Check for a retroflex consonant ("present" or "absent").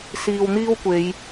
absent